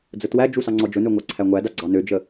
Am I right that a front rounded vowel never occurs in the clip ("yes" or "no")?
no